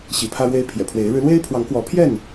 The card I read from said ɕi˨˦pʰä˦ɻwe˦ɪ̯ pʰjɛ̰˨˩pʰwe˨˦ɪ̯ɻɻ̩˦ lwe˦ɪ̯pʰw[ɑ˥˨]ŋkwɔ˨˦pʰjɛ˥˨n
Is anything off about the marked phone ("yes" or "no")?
yes